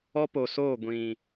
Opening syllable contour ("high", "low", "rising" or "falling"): high